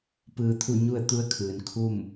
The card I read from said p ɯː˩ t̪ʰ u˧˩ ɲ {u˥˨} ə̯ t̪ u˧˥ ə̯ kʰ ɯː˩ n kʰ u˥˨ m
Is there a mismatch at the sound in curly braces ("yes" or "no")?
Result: no